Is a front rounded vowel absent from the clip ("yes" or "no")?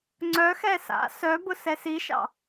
no